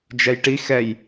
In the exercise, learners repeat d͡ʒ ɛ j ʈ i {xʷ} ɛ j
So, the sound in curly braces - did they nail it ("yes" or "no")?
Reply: no